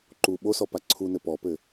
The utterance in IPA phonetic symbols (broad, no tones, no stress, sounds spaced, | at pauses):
ǃ u ɓ o s ɔ p a ǀʰ u n ɘ p ɔ p ɘ